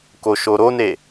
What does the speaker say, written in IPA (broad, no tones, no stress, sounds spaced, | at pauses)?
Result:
k o ʃ o ɾ o n e